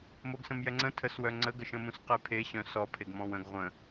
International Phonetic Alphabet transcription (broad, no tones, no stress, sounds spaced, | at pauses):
m o ɡ s ə̃ m j ɛ ŋ͡ǀ ə̃ tʰ ə s w œ ŋ͡ǀ ə ɡ ə ʃ ə̃ m ũ s q e pʰ e ɕ œ̃ s ɔ pʰ e ɡ m ɔ̃ w ə̃ ɡ ʁʷ ə̃